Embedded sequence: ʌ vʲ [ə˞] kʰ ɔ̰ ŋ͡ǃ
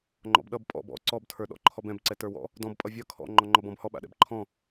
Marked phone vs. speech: incorrect: ʌ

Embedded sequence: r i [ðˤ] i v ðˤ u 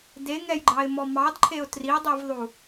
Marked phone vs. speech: incorrect: dˤ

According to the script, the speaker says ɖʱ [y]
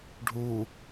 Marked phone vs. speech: incorrect: u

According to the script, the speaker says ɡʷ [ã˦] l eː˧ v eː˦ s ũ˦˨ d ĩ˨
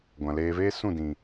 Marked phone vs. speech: incorrect: ã˨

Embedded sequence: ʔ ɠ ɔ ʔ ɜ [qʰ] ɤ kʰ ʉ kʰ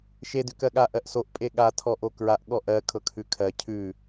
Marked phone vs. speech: incorrect: kʰ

